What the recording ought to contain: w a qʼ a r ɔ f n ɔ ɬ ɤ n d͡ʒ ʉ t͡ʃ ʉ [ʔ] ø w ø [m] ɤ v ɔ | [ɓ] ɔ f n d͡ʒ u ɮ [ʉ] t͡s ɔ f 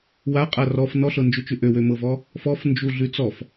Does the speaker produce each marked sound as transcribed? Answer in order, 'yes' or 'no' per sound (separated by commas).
yes, yes, no, yes